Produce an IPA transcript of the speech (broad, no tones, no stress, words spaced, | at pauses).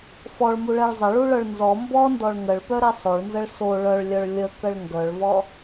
fɔɭmuɭɛɭ zˤəɭuɭœɭ nzɔ mbɔndɔɭ ŋəɭpœɾɛ sˤoɭnzəɭ so ɭœɭlʲœɭ lʲəkəɭ ŋɡœɭvɔ